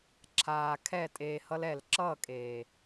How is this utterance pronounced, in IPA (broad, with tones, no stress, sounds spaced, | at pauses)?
ǁʰ aː˨ kʰ ɛ˦˨ tʼ eː˧ h ʌ˦ l ɛ˨ l ǁ ʌ˦˨ kʼ eː˨